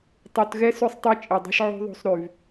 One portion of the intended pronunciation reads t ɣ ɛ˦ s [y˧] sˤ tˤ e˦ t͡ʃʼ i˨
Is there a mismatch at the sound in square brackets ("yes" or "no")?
yes